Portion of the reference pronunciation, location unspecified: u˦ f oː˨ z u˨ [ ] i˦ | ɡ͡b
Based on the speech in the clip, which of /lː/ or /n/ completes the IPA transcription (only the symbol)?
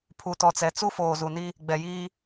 n